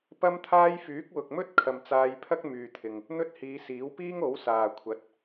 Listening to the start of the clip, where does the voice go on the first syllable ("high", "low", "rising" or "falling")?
high